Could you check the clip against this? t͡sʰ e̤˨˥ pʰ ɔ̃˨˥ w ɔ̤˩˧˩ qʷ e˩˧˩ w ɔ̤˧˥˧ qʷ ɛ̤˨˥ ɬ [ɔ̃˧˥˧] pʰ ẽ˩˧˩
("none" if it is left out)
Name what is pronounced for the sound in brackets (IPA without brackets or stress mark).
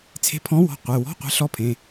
ɔ˧˥˧